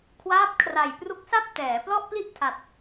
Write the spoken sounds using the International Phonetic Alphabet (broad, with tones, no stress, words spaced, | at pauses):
kʰwaː˦˥p̚kʰra˨˩jpru˦˥k̚sa˥˩p̚ tɛː˩˦plɔ˥˩ʔpli˥˩ʔtʰa˨˩t̚